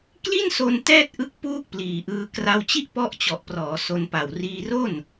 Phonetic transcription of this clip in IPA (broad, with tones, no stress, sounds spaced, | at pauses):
k l i˥˩ n s o˧ n t ɛː˥˩ t̚ ʔ ɯ˦˥ k̚ p uː˥˩ k̚ p l iː˨˩ ʔ ɯː˧ k r a˧ w t͡ɕ i˥˩ ʔ p ɔ˦˥ ʔ t͡ɕ ɔ˨˩ ʔ p r ɔː˩˦ s o˧ n p a˨˩ w r iː˧ r o˥˩ n